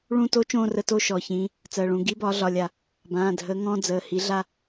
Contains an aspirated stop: no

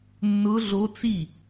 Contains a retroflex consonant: no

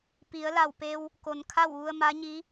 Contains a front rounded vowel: no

